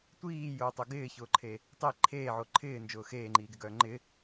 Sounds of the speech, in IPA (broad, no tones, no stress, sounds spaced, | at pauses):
tʷ iː j ʊː tˤ ʊ ɡ ɪː ç ʊː ǃʰ e | tˤ i ǃʰ eː ʕ o ǃʰ ɪː n d͡ʒ ʊː x eː ŋ͡ǃ iː ɡ ɪ ɡ œː ŋ͡ǃ ɪ